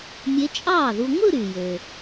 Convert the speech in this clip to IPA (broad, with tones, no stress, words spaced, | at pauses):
mʲe˧˥ t͡ʃʼɑː˥˩ðu˧ ŋʷɯ˥˧ɾy˩ jø˩